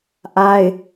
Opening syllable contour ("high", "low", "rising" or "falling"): high